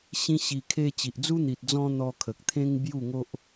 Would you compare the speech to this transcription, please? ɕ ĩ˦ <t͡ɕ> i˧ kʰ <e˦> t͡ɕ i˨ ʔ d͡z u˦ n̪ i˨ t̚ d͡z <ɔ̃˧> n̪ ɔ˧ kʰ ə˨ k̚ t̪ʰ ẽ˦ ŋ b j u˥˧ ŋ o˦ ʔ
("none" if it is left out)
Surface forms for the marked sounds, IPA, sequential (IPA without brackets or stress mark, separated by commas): ɕ, e˧, ɔ̃˧